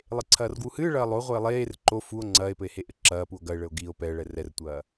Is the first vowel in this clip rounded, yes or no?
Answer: no